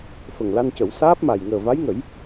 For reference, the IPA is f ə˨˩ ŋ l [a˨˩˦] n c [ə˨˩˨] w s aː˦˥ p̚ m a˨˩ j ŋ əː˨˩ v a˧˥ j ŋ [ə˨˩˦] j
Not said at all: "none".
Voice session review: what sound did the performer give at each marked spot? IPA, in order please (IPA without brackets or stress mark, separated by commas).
a˧, ə˨˩˦, ə˨˩˦